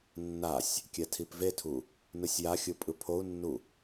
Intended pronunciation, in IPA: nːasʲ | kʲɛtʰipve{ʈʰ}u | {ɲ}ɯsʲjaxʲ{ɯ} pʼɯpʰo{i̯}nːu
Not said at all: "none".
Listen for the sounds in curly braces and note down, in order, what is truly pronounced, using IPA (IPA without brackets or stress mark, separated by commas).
tʰ, n, ɯ, u̯